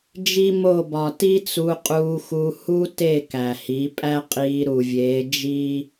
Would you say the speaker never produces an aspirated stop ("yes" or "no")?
yes